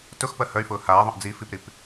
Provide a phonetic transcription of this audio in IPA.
tʊxpɜ hœy̯fʊː haːðˤœ̃ʔ d͡zi fipɾip

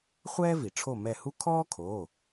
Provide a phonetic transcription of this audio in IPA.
χʷɛː˥vi˩ ʈ͡ʂʰo˦˨mɛ˦˨hu˥ kʰɔː˥kʰoː˩˧˩

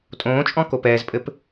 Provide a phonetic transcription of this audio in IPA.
tʼõːt͡ʃʼɔ̃ kopɛːzpʼɘp

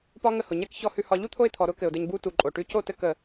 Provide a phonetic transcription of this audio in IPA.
pɒ˦ ŋə˧hʊ˨ ɲɛ˦k çɔ˧hʉ˧hɒ˧ ʎu˦t̪ʰo˧ɪ̯t̪ʰɔ˨ ɾʊ˦kɘ˨ʊ̯dɘ˧ɲbu˦ tu˨ǃʼo˨ʈʉ˧ co˦˨tɘ˦˨k ə˨

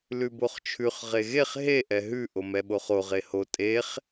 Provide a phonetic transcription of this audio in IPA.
lʉboχt͡ʃʰʉχ ʁeɣeχ ɦe ʔɛɦʉ ʔomɛɓoχo ʁeho tʼeχ

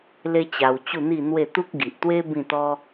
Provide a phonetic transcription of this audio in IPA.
le˦t͡ɕa˧w t͡ɕu˥˧n̪i˥˧n̪we˥˧ t̪u˦k̚ɡi˨ʔt̪we˦ bĩ˥˧t̪ɔ˦

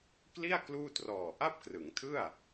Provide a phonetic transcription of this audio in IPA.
kli˥˩a̯ kluː˥˩trɔː˨˩ ʔa˥˩p̚krɯ˩˦ŋtʰɯ˥˩a̯

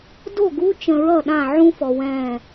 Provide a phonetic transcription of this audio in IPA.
do˦˨ɡu˦ t͡ʃə̃˨ɹʌ˦˨ ɗã˦˨ ʕũ˦fɔ˨ wɛ̃˦˨

